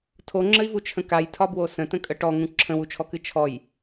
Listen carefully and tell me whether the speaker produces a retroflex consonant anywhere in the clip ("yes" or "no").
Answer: yes